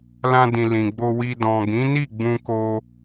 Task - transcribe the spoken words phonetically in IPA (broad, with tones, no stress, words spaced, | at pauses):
lã˧dĩ˨ lĩ˨ɡ͡bo˧wi˧ dɔ̃˨ɡĩ˨˦ni˦˨ ɡ͡bũ˧ko˧